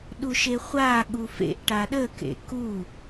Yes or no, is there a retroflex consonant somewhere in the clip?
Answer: yes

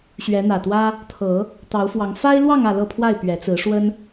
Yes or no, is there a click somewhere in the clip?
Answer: no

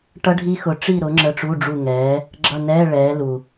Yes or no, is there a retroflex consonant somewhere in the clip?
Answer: yes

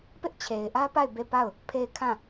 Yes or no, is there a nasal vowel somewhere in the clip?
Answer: yes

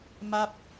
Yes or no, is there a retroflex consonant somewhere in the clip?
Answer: no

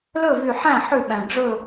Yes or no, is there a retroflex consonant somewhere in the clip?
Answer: yes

